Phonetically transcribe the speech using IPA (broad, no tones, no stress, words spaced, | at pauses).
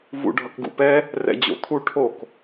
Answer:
vṵɖʱʌkɡṵpɛ | rɛ̰d͡ʑo̰t̪ʰu ʈʰok